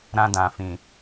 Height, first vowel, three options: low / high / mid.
low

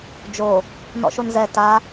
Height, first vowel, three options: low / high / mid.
mid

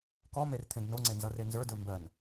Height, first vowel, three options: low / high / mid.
mid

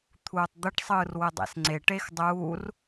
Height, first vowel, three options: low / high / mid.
high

